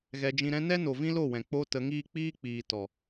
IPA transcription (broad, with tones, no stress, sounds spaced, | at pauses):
ɣ ɛ˧ d͡ʒ ĩ˧ ɾ ɛ̃˦ n ɛ˦ n o˨ v ĩ˦ l o˦˨ w ɛ̃˨ k͡p o˧ t ə˨˦ ŋ iː˦ k͡p iː˦ k͡p iː˨ t ɔ˨